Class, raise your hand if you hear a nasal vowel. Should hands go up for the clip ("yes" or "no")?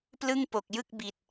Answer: no